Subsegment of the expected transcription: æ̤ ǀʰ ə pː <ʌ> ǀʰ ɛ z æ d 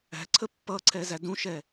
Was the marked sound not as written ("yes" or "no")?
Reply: no